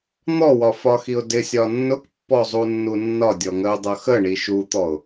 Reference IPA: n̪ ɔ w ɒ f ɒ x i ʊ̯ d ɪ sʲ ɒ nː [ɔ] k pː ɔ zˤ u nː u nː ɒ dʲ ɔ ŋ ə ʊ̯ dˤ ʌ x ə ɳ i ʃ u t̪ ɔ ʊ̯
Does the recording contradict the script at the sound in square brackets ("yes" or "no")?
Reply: yes